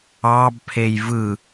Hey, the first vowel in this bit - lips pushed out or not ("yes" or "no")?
no